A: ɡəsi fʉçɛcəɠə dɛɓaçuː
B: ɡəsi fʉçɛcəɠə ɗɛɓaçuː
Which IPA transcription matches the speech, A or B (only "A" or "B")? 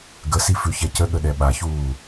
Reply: B